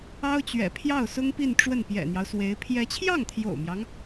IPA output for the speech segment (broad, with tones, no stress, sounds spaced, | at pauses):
ɑ˥ ʊ̯ t͡ɕ ɥ ɛ̰˨˩ pʰ j ɑ˥˩ ʊ̯ s ʊ˥ ŋ p i˥˧ n ʈ͡ʂ w ə˥˩ n p j ɛ̰˨˩ n̪ j ɑ˦ ʊ̯ s w e˧˥ ɪ̯ pʰ j ɛ˧˥ t͡ɕʰ j ɑ˥˩ ŋ t̪ʰ j o̰˨˩ ʊ̯ m j ɑ˦ ŋ